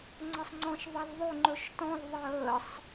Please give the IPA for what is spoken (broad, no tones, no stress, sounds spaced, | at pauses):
ŋ͡ǀ ʌ sˤ ŋ͡ǀ ɔ̃ ʃ ðˤ ɛ l ðˤ ɵ ŋ͡ǃ ɵ ʃ t ɔ̃ l ðˤ əː sˤ